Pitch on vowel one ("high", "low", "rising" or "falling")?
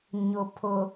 low